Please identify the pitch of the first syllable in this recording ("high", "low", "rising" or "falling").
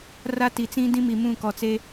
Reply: high